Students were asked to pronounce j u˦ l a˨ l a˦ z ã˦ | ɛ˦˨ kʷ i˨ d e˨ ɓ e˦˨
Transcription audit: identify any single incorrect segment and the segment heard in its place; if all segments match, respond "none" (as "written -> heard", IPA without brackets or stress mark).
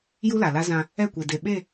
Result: none